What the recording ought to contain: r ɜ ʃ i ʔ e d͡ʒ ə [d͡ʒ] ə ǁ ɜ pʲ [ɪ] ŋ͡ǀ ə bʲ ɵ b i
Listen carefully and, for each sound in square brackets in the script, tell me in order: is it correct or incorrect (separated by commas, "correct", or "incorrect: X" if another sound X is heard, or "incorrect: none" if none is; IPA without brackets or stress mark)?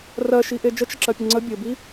incorrect: t͡ʃ, incorrect: ə